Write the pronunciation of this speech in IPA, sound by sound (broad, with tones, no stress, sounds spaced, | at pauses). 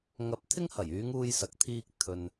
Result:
ŋ ɐ˧ p̚ t̪ʰ ɪ˥ ŋ h ɐ˨˩ j yː˨˧ ŋ uː˧ j s ɐ˨ k̚ t̪ʰ iː˧ k̚ t̪ʰ ɵ˨ n